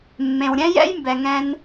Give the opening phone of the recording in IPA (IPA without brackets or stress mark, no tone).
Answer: mː